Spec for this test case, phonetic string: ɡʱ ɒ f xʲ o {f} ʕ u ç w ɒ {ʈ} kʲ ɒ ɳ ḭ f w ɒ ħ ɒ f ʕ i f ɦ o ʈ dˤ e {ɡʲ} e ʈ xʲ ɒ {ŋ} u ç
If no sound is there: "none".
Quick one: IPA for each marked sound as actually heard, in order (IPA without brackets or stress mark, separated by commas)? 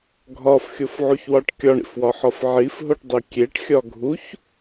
f, ʈ, kʲ, ɡʱ